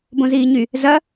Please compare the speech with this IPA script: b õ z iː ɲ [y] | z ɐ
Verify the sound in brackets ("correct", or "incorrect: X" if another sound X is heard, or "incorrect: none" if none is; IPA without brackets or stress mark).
correct